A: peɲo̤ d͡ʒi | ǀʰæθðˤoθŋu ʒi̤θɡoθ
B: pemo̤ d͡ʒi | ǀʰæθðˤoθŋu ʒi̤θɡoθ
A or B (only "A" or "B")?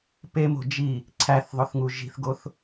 B